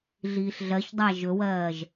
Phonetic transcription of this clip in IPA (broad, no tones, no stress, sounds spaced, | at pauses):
ɮ iː ɬ ɮ ɜ ç dˤ æ ʒ ɵ w ɜː ʒ